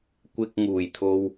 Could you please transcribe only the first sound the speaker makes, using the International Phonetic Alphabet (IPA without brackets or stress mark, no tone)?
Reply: kʷ